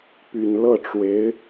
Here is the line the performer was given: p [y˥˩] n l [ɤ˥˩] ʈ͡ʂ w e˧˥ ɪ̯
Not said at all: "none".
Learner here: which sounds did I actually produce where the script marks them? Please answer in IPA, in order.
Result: y˨˩, ɤ˥˩

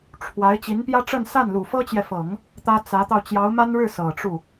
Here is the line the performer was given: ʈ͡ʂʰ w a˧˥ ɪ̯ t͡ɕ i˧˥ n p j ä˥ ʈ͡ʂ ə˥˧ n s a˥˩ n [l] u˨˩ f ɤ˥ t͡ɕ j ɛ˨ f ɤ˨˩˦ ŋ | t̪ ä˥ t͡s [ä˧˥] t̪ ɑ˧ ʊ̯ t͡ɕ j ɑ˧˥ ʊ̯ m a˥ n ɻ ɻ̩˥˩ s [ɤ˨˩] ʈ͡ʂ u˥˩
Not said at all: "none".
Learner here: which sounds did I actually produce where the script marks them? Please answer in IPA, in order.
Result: l, ä˧˥, ɤ˨˩

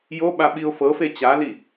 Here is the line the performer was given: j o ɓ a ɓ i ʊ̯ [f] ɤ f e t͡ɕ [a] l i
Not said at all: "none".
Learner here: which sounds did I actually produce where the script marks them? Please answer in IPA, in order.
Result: f, a

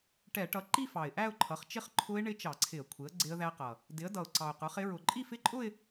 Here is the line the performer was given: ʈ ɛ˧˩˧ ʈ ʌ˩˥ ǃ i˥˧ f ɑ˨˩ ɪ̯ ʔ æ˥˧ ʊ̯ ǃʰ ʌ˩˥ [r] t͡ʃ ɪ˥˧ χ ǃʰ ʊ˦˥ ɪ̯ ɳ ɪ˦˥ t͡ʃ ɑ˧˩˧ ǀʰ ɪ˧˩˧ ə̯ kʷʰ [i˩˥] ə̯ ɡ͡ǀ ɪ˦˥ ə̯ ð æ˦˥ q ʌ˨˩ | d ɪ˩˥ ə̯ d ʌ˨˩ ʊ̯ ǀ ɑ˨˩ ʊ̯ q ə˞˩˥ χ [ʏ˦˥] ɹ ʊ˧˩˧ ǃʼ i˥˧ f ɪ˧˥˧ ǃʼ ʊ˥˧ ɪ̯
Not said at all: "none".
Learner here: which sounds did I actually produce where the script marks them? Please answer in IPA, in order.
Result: χ, ɪ˩˥, ɪ˦˥

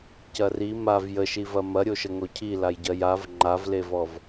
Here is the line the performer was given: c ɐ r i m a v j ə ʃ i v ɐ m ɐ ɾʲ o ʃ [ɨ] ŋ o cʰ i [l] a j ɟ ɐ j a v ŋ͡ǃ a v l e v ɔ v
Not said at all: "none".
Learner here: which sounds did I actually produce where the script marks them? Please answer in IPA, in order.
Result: ə, l

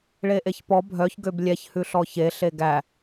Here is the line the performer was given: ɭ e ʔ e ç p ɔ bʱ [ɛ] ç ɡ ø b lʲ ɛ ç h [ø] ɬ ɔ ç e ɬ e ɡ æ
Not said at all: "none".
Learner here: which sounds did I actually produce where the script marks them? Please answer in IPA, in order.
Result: œ, ʉ

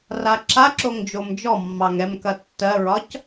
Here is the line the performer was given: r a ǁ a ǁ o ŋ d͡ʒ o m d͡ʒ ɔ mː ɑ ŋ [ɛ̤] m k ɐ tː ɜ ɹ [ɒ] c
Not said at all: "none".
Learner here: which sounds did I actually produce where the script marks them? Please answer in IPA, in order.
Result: ɛ, ɒ

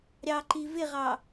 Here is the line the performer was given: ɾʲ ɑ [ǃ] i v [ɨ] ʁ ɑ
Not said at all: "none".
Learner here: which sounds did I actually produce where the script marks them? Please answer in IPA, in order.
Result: ǃ, ɪ

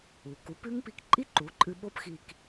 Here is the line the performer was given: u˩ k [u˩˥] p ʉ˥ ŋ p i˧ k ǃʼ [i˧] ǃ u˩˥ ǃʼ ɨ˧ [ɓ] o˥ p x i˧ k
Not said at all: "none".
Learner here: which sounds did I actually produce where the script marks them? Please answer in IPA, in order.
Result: u˩˥, i˥, ɓ

